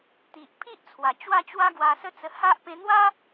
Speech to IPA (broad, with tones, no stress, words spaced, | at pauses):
t̪i˨ʔpʰi˦ʔt͡sʰwa˨˩ t͡ɕwa˥˧t͡ɕwa˦ɡwa˧ sə˦t͡sə˧ ha˦ʔ pẽ˧n̪wa˦